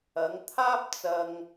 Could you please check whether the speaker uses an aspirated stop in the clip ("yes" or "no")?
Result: yes